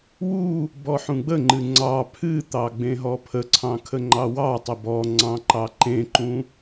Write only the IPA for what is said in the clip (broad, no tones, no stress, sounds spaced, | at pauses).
w u | b ɔ ħ ũ ɡ͡b ə ŋ͡ǃ ɨ ŋ͡ǀ ɑ pʰ ɨ t̪ ɑ ɡ͡b ẽ ɦ ɔ pʰ ə ǀʰ ɑ̃ kʰ ə ŋ͡ǃ ɑ w ɑ tˤ ə b ɔ ŋ͡ǀ ɑ̃ ǃ ɑ ǃ ẽ ǃ ũ